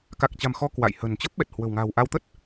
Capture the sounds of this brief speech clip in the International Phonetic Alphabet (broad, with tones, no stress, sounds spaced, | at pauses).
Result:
k a˨˩ k̚ t͡ɕ a̤˨˩ m x ɔ˧ k w a̰˧˨ j h ə̤˨˩ n t͡ɕ ə˦˥ p̚ ɓ ɛ˨˩ t̚ h w ə̤˨˩ w ŋ a̤ː˨˩ w ʔ a˧ w t̪ ə˦˥ t̚